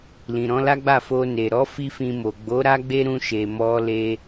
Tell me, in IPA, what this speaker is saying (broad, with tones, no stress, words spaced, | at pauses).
lĩ˨ɾɔ̃˨˦la˦ɡ͡ba˦˨ fo˧ne˨ɾɔ˨˦ fi˦fĩ˧mo˨ ɡ͡bo˨˦ ɾa˦ɡ͡be˦ɾũ˧ ʃe˨mɔ˧le˧